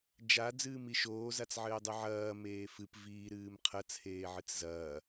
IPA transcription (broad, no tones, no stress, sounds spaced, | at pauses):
d͡ʒ a d͡z ɨː m i ʃ oː z a t͡s ʕ ɘː dˤ ɨ ʕ ɐː m eː f ɨ p v iː ɾ ɨː m qʰ ɐ t͡sʰ eː ʕ ɨ t͡s z ɐː